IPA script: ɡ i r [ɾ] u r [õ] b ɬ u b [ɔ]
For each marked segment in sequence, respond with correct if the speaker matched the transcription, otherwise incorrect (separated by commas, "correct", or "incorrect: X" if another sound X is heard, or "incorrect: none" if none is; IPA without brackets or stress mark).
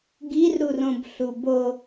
correct, correct, incorrect: o